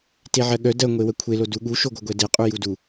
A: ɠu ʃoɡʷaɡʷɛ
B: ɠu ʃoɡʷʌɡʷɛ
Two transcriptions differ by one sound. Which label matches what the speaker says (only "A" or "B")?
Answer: B